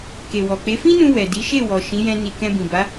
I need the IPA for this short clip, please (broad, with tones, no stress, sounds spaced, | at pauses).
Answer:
k e˨ w ɔ˨ k͡p e˨˦ f ĩ˦ n ũ˧ w ɛ˨ d i˨˦ ʃ e˦˨ w ɔ˨ ʃ ĩ˨˦ j ɛ̃˧ n i˨ k ɛ̃˧ b ĩ˨ b a˨˦